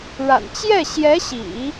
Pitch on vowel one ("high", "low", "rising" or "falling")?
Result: low